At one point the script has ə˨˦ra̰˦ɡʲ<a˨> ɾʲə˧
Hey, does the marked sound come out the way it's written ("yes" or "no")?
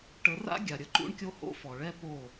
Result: yes